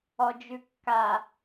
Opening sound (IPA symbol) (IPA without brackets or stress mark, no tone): ɔ